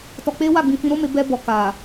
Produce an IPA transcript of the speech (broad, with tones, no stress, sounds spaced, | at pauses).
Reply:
t ɔ˧ k͡p e˦ w a˦˨ ɡ͡b ĩ˧ f ĩ˧ ɾ o˦ m e˧ b ɛ˧ b ɔ˨ k a˨